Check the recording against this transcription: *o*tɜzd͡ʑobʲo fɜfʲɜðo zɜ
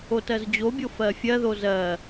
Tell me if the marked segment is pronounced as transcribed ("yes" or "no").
yes